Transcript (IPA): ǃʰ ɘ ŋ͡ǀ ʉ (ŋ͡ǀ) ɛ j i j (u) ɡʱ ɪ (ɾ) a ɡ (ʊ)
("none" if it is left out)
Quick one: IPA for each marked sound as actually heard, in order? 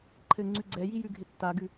ɡ͡ǀ, ʉ, tː, ʉ

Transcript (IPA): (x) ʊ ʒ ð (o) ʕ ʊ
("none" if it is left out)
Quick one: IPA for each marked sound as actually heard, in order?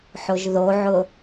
ħ, o

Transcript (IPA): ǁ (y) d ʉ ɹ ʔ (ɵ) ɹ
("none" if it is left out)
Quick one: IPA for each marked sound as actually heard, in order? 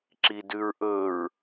i, ɵ

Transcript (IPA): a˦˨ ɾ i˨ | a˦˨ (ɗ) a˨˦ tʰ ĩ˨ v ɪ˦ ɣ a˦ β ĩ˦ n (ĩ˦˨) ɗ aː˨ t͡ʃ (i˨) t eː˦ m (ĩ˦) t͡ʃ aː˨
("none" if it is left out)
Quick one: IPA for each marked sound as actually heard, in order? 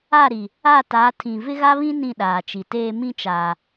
t, ĩ˦˨, i˨, ĩ˦

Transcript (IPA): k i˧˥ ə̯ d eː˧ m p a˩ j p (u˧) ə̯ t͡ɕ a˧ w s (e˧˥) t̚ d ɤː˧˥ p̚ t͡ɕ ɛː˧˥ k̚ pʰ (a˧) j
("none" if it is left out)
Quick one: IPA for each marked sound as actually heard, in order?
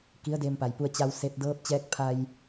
u˧, e˧, a˧

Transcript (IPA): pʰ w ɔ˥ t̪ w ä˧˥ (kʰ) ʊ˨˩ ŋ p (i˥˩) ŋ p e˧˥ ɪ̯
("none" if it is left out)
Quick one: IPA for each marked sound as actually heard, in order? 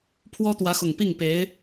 x, i˥˩

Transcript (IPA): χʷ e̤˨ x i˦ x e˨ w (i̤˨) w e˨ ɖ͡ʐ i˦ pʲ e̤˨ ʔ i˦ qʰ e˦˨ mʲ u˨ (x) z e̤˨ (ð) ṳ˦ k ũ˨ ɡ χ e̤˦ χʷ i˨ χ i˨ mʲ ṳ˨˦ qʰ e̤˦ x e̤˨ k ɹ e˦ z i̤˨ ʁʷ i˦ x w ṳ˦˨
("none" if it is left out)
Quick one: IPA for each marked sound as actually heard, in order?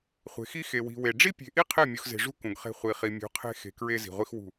i̤˨, x, ʐ

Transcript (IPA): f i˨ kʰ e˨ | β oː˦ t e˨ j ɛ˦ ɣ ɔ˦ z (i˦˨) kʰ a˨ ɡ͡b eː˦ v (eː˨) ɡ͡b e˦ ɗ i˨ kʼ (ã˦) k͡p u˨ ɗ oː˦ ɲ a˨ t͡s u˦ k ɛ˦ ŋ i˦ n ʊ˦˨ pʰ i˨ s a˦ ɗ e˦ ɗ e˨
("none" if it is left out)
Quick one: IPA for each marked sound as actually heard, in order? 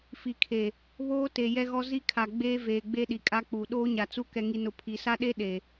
i˦, eː˨, a˦

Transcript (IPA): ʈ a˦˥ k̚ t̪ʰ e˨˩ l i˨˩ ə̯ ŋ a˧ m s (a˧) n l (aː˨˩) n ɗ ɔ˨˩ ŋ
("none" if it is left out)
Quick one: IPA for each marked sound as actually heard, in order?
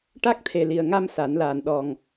a˨˩˦, aː˨˩

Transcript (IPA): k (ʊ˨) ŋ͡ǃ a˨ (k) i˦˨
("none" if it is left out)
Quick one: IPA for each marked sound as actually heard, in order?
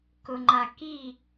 ʊ˨, k

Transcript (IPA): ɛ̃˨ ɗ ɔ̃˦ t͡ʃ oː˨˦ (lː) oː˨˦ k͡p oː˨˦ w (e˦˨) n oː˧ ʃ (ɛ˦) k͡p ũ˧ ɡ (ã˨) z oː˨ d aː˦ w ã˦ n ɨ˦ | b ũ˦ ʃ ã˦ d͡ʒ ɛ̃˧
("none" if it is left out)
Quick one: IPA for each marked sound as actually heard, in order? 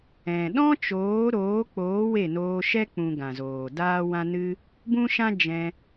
ɾ, e˦˨, ɛ˦, ã˨

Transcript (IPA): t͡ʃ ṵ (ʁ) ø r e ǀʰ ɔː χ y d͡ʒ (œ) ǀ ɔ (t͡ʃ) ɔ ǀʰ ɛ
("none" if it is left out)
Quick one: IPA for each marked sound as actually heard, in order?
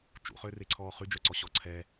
χ, œ, ɕ

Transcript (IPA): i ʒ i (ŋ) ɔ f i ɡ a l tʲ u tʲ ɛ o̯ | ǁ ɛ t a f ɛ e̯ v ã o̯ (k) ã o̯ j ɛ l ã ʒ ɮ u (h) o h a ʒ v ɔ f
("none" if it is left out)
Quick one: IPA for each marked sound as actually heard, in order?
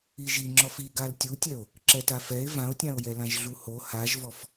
ŋ͡ǁ, tʲ, h

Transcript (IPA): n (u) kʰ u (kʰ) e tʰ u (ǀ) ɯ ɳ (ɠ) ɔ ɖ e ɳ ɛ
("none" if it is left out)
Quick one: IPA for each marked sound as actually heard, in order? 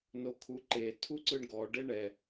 o, ǃ, ǀ, ɡ

